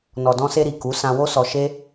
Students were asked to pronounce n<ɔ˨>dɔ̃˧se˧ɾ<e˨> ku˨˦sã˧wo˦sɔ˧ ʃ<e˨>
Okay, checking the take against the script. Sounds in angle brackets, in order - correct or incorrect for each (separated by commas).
correct, incorrect, incorrect